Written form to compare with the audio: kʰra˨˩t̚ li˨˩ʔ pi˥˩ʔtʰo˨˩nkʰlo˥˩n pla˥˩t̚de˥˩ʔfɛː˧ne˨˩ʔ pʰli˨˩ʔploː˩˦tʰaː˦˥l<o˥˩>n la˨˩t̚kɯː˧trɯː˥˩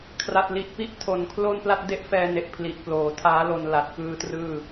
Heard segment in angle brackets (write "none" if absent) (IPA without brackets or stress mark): o˧